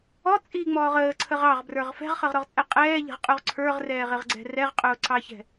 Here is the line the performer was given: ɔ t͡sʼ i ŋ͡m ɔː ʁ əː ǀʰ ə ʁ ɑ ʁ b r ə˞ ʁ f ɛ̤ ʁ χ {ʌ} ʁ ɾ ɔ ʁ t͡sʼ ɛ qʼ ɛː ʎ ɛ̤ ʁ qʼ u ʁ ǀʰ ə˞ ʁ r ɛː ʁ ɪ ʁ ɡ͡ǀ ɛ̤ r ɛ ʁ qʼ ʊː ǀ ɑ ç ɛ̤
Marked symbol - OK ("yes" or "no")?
yes